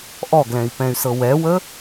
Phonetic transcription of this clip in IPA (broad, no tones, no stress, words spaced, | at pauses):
ʔɔɡlɛ̃i̯ pɛ̃y̯sɤwɛwə